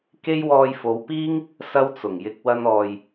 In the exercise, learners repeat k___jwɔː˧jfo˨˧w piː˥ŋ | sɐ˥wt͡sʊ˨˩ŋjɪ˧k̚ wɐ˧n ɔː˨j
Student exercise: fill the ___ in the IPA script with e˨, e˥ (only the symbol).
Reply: e˥